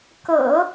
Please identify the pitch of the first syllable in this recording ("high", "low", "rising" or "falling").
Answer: low